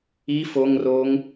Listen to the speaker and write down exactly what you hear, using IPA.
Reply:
i f o ŋ r oː ŋ

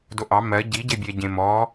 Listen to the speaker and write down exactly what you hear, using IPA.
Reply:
d o ʔ ɑ m ɜ ɟ i ɟ e bʲ ɛ ɟ ẽ m ɔ

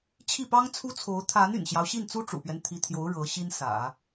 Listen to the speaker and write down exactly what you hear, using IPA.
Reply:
t͡ɕʰ i˥˩ p ɑ˥ ŋ t͡sʰ u˥ t͡sʰ o˧˥ ʊ̯ t̪ʰ a˧˥ n y̰˨˩ n ɕ j ɑ˦ ʊ̯ ɕ i˥˩ n t͡s u˥ ʈ͡ʂ ṵ˨˩ p ɥ ɛ˦ n t̪ʰ i˧˥ t̪ʰ j o˧˥ ʊ̯ ɻ ɤ˧˥ ɕ i˥ n s ä̰˨˩˦

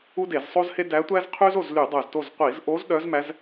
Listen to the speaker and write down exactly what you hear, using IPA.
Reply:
u˥ d e˧˩˧ z sˤ o˥ z h e˥ d æ˧˥ tʷ æ˥ z qʰ y˥ z o˥˨ z l y˧˩˧ dˤ œ˧˩ z t o˥˨ z qʷ i˧˩˧ z ʔ o˧˥ z ɗ œ˧˥ z m æ˧˥ z

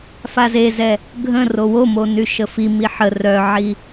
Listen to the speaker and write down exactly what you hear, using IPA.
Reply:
f a z e z ɛ | ɡʱ ə̃ r o w o m o n y ʃ ə f i m i ħ ə r œ ʕ i

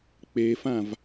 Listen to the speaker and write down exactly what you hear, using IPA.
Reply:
k͡p e f ã v

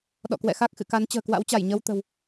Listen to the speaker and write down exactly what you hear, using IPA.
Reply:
ɗ ɔ̰˧˨ k w ɛ̰˧˨ x a˦˥ k̚ x ɨ̰˧˨ k a˨˦ n t͡ɕ ə̤ː˨˩ k w a̰˧˥ w t͡ɕ a˧˩ j ɲ ə˧ w t̪ ə̤˨˩ w

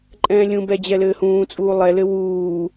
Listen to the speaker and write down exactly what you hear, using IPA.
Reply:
ǃʼ ɛ̃ː lʲ ũ b ɛ d͡ʑ ɛ l ɘː h ũː t͡sʼ uː lˠ ɛ l ɘ w uː

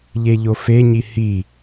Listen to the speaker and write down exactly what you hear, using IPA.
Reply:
ʎ e ʎ o f e ɲ i h i

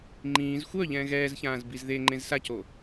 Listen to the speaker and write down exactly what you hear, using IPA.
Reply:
ŋ͡ǃ ĩː z xʷ œ ʎ ɛ̃ ɣ ɛː z ç ãː z b i z ð e ŋ͡ǃ ẽ z s a c o

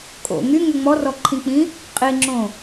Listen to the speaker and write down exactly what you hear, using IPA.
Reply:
kʼ o̰ ŋ y ŋ ʏ ŋ͡m ɔ r ɔ ǃʰ ĩ k͡p ĩ | qʼ i ŋ͡ǁ õ

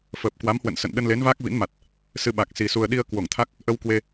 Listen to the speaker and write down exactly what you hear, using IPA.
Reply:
f əː˨˩ p̚ k w a˨˦ m h w ə̰˧˨ n s ə̰˧˨ n ɗ ə˧ n l e˨˦ n v aː˦˥ k̚ v ḭ˧˥ n m a˨˩ t̚ | s ɨ˧ ɓ a˨˩ k̚ s i˨˩ s u˨˩ ə̯ ɗ i˧ ə̯ k w o˧˩ ŋ t̪ʰ a˦˥ k̚ | ʔ ə˧ w k w e˧

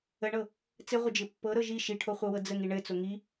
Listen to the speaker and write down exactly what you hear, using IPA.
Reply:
ə ɳ ɤ | t͡s ɘ ʁʷ ə d͡ʒ ɘ pː ɤ ɾ ɤ ʒ i ʃ i ʈʰ o χʷ ɤ w ɤ d͡z ə ŋ i ɳ ɘ t͡s o ŋ i

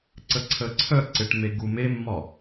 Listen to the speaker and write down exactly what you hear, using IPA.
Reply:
ǀ ə ǀʰ ə ǀʰ œ ǀ ɪ ʈ m e ɡ u m e mː ɒ

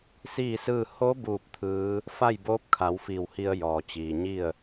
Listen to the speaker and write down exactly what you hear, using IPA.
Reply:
s iː˥˨ s ɯː˥˨ h o˧˥ b uː˥˨ p̚ t̪ʰ ɯː˧˥ | f a˥˨ j b oː˧˥ p̚ kʰ a˩˧ w f iː˧˩ w h i˧ ə̯ j ɔː˩ t͡ɕ iː˩ ɲ i˥˨ ə̯

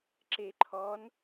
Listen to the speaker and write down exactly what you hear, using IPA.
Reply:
ǁ e ǃʰ ɔ n

